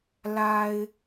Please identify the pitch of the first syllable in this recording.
low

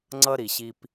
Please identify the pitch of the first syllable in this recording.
high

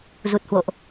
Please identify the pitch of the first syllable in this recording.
low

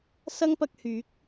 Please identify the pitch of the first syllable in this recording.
high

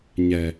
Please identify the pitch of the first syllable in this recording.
low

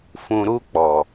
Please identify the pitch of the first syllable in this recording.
low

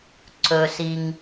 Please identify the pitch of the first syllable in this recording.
low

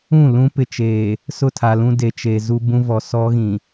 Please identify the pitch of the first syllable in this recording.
falling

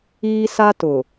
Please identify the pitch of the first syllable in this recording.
high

